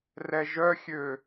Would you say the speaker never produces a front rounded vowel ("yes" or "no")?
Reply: no